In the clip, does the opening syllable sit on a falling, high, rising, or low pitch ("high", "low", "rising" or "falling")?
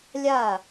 falling